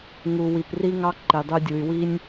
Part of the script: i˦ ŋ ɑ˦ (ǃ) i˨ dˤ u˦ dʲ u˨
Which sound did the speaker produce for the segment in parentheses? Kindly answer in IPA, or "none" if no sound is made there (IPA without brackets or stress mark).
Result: ǃ